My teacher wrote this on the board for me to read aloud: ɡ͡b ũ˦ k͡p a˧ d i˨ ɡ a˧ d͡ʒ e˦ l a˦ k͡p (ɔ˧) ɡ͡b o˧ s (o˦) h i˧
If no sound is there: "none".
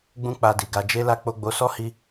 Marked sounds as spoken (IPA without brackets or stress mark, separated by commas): o˧, ɔ˦